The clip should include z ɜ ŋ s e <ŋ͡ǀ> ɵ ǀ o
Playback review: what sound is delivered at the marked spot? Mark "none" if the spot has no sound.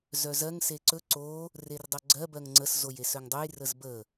ǀ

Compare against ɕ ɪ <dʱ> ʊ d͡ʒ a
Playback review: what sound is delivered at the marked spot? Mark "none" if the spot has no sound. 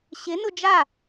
n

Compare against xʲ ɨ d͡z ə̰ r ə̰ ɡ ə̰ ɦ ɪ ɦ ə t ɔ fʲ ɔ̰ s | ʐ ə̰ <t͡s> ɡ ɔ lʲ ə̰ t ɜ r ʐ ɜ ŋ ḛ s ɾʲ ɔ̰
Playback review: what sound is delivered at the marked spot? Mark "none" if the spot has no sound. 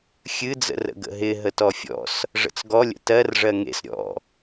t͡s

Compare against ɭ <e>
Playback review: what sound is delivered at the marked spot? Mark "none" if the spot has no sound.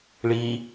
i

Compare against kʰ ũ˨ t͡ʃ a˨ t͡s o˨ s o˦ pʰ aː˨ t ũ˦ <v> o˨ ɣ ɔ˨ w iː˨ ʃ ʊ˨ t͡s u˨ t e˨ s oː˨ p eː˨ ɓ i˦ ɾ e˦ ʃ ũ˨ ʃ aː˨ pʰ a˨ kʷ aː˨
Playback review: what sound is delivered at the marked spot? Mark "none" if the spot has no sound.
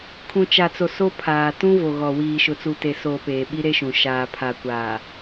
v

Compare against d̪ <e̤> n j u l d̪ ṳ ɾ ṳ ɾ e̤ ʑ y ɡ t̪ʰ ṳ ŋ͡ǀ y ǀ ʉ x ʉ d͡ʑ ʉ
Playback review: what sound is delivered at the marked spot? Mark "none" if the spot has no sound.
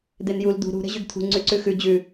e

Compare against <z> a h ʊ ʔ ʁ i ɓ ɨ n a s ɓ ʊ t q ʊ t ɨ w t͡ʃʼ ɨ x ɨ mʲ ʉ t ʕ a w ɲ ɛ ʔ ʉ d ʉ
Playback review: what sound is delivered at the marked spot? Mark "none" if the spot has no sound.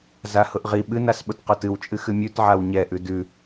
z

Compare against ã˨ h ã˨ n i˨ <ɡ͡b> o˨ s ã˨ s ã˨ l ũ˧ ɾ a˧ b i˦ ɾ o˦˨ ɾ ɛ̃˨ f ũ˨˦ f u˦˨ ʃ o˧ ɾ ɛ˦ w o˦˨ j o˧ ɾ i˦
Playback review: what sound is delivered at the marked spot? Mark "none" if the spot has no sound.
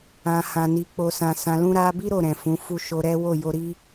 k͡p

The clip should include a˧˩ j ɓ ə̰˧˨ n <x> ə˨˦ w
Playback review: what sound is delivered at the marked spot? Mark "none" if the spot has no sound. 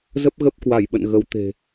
ɣ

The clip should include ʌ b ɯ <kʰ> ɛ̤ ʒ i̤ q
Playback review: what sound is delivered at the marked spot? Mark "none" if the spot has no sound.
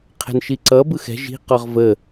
x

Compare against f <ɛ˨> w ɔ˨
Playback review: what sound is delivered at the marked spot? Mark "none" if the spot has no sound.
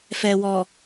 ɛ˨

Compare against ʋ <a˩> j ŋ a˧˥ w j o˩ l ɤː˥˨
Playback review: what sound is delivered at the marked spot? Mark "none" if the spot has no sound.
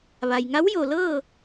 a˩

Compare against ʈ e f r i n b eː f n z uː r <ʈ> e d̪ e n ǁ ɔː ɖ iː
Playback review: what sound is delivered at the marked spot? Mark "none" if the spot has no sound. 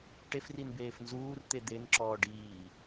t̪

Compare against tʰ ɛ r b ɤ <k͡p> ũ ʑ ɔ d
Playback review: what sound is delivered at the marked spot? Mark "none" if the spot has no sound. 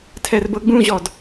ɡ͡b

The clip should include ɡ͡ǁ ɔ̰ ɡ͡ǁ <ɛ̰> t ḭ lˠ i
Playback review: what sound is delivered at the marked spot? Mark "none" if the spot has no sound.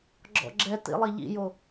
ɛ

